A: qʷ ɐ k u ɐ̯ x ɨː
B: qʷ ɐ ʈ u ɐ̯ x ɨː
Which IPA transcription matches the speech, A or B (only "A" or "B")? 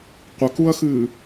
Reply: A